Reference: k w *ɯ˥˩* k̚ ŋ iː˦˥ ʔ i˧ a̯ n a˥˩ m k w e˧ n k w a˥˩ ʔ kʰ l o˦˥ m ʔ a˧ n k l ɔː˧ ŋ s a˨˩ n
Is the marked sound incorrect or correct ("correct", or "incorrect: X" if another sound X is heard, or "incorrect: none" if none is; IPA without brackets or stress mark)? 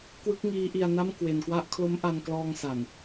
incorrect: ɯ˦˥